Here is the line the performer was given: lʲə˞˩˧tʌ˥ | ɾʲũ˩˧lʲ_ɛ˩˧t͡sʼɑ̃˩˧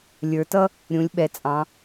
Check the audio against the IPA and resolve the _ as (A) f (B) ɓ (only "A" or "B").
B